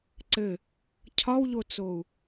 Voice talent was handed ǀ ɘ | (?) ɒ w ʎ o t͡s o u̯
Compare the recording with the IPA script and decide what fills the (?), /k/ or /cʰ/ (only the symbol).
cʰ